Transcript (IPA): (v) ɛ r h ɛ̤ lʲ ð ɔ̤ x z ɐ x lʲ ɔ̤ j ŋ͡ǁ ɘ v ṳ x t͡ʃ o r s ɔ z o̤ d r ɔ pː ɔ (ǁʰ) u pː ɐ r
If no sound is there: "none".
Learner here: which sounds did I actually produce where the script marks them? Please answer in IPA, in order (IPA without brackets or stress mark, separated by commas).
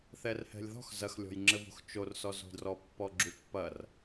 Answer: θ, ɡ͡ǁ